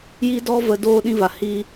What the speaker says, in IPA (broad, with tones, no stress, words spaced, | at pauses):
ji˦dɔ˦və˧ doː˦ɗĩ˦va˨ hi˦